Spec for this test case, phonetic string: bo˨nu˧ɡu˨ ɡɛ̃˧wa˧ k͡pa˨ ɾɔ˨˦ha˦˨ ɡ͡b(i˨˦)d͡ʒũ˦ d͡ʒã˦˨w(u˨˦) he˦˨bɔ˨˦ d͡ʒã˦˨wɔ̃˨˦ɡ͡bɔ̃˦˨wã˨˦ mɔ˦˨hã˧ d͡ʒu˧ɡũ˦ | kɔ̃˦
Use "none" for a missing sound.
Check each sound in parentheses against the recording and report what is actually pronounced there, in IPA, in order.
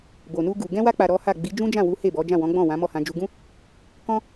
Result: i˨˦, u˨˦

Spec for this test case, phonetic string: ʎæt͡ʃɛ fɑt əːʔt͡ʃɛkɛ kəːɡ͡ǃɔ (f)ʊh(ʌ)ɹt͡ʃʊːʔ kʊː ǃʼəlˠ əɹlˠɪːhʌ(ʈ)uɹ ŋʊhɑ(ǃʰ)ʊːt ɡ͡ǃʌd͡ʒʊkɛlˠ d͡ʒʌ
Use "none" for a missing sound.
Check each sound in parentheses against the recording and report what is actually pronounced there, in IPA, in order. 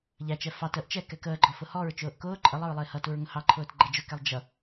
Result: f, ɔ, t, ǃʰ

